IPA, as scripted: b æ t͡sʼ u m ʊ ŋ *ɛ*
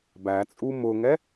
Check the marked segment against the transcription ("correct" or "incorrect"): correct